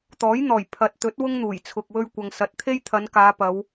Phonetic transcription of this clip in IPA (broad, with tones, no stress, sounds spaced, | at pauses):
t̪ ɔː˨˥ j n̪ ɔː˨˩ j pʰ ɐ˨ t̚ t̪ ɵ˨˥ t̚ w ʊ˥ ŋ n̪ uː˨˩ j t͡sʰ ʊ˨ k̚ w ɵ˧ ɥ kʷ ɐ˨ ŋ s ɐ˨˥ t̚ t̪ʰ e˥ j t̪ʰ ɐ˨˧ n k aː˨˧ p ɐ˨˧ w